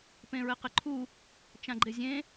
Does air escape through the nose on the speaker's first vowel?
yes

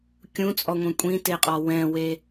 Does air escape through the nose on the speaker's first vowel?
yes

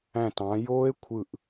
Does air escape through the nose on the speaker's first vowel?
yes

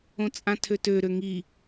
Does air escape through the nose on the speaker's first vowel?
yes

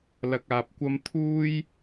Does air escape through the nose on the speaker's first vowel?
no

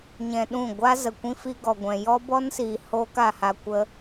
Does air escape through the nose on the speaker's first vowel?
yes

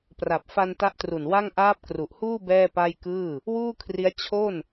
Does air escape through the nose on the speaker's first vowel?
no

